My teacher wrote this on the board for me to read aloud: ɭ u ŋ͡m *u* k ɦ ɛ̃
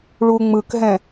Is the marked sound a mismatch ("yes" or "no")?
yes